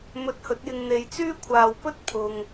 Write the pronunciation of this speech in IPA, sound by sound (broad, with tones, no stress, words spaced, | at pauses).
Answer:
mɵ˧t̚hɵ˨˥t̚jɪ˧ŋ n̪e˨jt͡syː˥kʷʰaː˨wpɵ˥t̚ pʰʊ˨ŋ